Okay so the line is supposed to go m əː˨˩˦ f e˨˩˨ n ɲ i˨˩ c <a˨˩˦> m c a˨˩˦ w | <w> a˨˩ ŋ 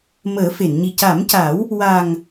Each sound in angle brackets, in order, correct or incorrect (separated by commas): correct, correct